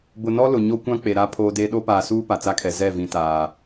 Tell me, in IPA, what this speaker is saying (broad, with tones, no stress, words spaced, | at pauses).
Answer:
bʊ˨nɔ˦lʊ˨ ɲo˦kʷã˦k͡pe˨ ɾa˦pʰoː˦de˦ ɗo˦paː˨suː˦ pa˨t͡sa˦kʰɛ˨ zɛ˦˨vĩ˨ taː˨